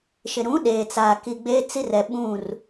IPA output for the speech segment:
ʃɪ˨ɾũ˨˦ ɗeː˨t͡saː˨ ki˨ɡ͡beː˦t͡si˦rɛ˨ ɓũ˦˨r

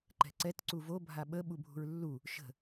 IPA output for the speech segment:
ǃɛ̤ǀɛt ǀuvo bʱaɓə ɓubʱṳɹlːu | ʃə̤

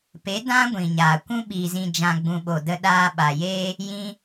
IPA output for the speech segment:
pe˨˦dã˦ ɡʷĩ˨ɲaː˨ kʷũ˦ ɓi˨zĩ˨ d͡ʒã˨ɡ͡bũ˨ ɓo˨də˧ ɗaː˧ɓa˨ jeː˧ | jĩ˧

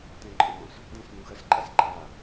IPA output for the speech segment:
tɛ̃ǃʼɔ̃s | dɛ̃s nũxɐs ǃʼasǃʼa

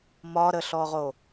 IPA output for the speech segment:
mɒɾəɬɔʁo

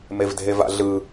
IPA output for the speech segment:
mevdʱeva̰ɮɯ

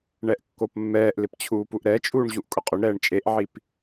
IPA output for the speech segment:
ɳɛʔkːopmːɛːʔlɪp t͡ɕʰuːpuʔɾɛt͡ʃʼuːɳ ʑuʔkʼʊqʼʊɳɾɛːɳ t͡ʃʼeʔʕip

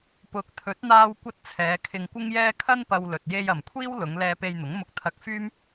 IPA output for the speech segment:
pʊ˨˥k̚t̪ʰɵ˨˥t̚ n̪aː˧wkʷɐ˧t̚ t͡sʰɛː˨˧ kʰɪ˧ŋkʷɪ˥ŋjɛː˥ kʰɐ˥n pɐ˧wlɵ˨t̚ je˧j ɐ˨mkʷʰiː˥wlʊ˨˧ŋ lɛː˧pe˧jn̪ʊ˨˥ŋ mʊ˧k̚t̪ʰɐ˧k̚fyː˥m

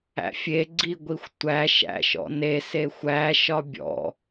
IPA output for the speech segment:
æ̰fʲe ɡ͡ǀiɡʷixʷtʷæ ʃæ̰ʃɔ̰ne sexʷæ ʃɒbʲɔ̰

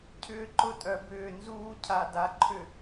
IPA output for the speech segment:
cʰʏː˦ǃʊ˦tʼœ˨bʏː˦˨ nzuː˦cʰa˨da˨ǃʰʏ˨

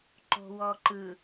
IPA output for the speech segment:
ǃo̤wɔǃɯ

